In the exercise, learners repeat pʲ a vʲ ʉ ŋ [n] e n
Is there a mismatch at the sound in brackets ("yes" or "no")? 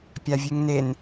no